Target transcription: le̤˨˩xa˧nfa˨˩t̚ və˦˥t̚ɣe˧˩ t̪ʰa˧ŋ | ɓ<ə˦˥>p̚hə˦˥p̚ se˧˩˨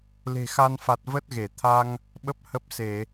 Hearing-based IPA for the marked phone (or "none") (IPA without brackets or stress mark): ə˦˥